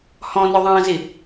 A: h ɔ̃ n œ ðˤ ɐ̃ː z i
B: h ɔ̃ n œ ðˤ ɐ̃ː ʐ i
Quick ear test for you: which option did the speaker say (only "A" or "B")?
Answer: A